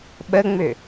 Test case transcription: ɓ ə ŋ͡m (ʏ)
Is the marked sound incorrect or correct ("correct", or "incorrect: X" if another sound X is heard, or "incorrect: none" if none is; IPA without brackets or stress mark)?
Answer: correct